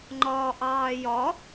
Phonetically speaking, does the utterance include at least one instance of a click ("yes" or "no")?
yes